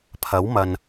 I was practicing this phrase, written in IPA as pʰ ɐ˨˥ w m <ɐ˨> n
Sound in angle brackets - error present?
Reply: no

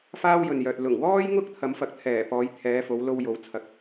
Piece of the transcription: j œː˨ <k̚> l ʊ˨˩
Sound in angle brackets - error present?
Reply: yes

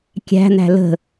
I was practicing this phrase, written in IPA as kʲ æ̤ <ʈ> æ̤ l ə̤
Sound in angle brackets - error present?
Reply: yes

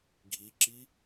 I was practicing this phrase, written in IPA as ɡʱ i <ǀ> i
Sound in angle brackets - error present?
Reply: yes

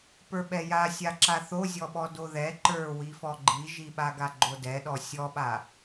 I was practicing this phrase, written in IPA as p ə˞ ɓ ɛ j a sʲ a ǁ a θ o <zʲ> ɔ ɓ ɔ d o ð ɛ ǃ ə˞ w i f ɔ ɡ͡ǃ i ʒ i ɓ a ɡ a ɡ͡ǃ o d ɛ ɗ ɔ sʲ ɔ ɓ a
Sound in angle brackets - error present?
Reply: no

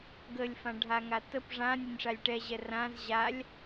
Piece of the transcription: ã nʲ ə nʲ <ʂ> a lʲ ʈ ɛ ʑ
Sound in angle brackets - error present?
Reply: no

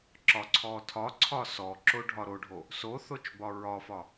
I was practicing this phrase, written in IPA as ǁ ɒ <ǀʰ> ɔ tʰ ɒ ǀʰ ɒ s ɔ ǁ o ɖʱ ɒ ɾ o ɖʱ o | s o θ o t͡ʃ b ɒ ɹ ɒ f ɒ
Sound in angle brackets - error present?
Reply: no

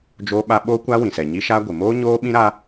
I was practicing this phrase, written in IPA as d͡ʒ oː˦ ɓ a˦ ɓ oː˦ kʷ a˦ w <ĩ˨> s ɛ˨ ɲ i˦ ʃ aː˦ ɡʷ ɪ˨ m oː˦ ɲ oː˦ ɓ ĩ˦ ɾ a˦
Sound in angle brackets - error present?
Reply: no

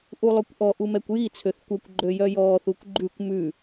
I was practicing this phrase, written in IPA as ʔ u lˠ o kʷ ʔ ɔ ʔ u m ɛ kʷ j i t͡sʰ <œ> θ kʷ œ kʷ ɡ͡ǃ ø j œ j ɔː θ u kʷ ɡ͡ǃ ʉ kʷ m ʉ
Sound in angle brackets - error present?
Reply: yes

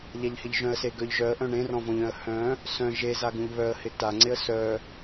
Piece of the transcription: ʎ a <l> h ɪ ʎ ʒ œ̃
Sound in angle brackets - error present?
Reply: yes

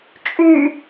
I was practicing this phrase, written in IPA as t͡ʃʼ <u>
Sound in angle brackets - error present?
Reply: yes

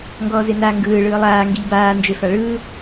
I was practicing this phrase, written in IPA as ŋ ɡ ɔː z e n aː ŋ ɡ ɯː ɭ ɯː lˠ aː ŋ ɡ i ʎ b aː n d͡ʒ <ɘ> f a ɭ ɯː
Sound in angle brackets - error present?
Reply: yes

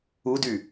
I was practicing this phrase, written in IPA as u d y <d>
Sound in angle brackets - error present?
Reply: yes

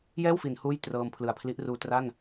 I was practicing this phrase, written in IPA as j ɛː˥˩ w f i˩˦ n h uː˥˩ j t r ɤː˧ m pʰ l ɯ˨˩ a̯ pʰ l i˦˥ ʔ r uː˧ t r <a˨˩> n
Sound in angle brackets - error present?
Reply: yes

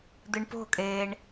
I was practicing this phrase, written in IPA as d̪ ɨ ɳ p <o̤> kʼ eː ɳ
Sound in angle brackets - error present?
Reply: no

